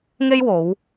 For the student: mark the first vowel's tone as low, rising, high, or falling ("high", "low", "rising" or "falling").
high